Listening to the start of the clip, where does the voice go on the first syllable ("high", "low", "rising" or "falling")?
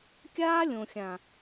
high